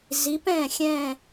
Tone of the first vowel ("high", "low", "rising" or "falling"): rising